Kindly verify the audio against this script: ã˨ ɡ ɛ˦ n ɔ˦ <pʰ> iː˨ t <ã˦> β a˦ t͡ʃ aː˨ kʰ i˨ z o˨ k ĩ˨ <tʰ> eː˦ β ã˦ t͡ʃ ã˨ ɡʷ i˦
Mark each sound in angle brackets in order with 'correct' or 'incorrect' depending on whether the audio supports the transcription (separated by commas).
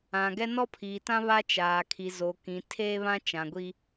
correct, correct, correct